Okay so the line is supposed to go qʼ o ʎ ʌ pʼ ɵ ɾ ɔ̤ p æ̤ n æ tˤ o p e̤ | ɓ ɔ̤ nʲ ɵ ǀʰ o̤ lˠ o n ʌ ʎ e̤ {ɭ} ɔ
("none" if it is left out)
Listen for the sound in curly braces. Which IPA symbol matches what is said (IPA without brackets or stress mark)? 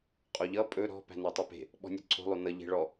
ɭ